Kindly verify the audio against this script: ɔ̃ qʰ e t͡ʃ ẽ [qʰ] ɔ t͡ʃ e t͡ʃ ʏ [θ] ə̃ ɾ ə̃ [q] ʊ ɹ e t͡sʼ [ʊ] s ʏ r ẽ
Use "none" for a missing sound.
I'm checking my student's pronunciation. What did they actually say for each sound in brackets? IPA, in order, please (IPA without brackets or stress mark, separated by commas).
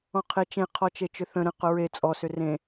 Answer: qʰ, θ, q, ɔ